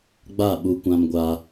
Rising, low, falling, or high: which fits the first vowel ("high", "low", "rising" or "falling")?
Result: falling